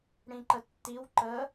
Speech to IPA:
ɽ ĩ ǃ ə tː i w ǃ ə

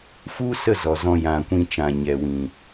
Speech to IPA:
f u˦ s ə˦˨ z ɔ˨ z ɔ̃˧ j ã˨ kʷ ĩ˧ t͡ʃ ã˨ ɲ ɛ˨ w ĩ˨

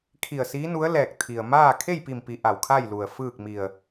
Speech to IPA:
kʰ i˧˩ ə̯ s iː˧˥ n u˧˥ ə̯ l ɛː˧˩ k̚ t̪ʰ i˩ ə̯ m aː˥˨ kʰ e˥˨ j p i˧˩ m p i˩˧ ʔ a˩ w kʰ a˥˨ j l u˩ ə̯ f ɯː˥˨ k̚ m i˧˩ ə̯

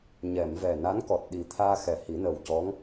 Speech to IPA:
ɲ ɛ˨˩˨ m v ɛ˨˩ n a˧˥ n k ɔ˨˩ t̚ ɗ i˨˩ t̪ʰ aː˧ x ɛ˨˩ h i˨˩˦ n ə˨˩ w c ɔ˧˥ ŋ

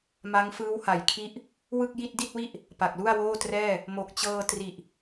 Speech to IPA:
m a˦˥ ŋ f ɯː˦˥ w h a˩˦ j kʰ i˦˥ ʔ | w ɯ˥˩ k̚ j i˥˩ t̚ d i˥˩ t̚ w i˥˩ ʔ | p a˨˩ k̚ l u˥˩ a̯ w oː˥˩ t r ɛː˥˩ | m o˨˩ k̚ t͡ɕ ɤː˧ t r i˨˩ ʔ

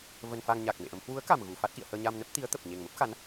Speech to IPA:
v ə˧ n f a˧ ŋ ɲ a˨˩ k̚ m ḛ˧˨ ʔ ə˨˦ m h w u˨˦ ə̯ k a˨˩ m ɣ u˧˩ f a˦˥ t̚ ʔ ḭ˧˨ ə̯ h əː˧ ɲ a˧ m n ə˦˥ p̚ t̪ i˨˦ ə̯ t̪ ə˨˩ p̚ ɲ e˨˩ ŋ m ə˦˥ p̚ x a˨˦ n

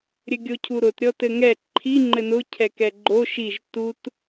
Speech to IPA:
ɾʲ ɘ ɡʲ o cʰ u ɾ ʊ t ɾʲ ɔ t ɘ ŋ ɛ ǃʰ i ŋ͡ǃ ɘ n ʊ cʰ ɛ k ɛ ɡ͡ǃ o ʃ i ʒ t u t

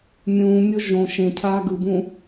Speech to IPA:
mʲ ũː mʲ o ʒ õ ʃ ẽ cʰ aː ɡ ɯ b ũː

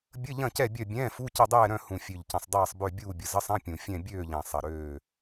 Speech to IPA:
bʲ ə˧˥˧ ʎ ɐ̃˦˨ c ɛ˦˨ bʲ œ˦˨ bʲ ɛ̃ː˧˥˧ f u˧˥˧ c ɐ˦˨ dˤ ɛː˦˨ ɾ œ̃˦˨ h ũ˨˩ fʲ ø˨˩ ʎ c ɐ̃˨˩ sˤ dˤ ɛː˦˨ sˤ b ø˦˨ bʲ uː˦˨ bʲ ə˨˩ z ə˧˥˧ sˤ ɐ̃˧˥˧ pʲ ũ˨˩ fʲ ɛ̃˦˨ bʲ øː˦˨ ʎ ɛ̃˨˩ sˤ ɐ˨˩ ɾ øː˦˨

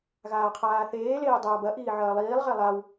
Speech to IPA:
ɣ aː qʰ aː θ eː l eː dˤ ɐː b ɐ ʔ iː ʕ ɐː lˠ iː lˠ ʁ e lˠ a w

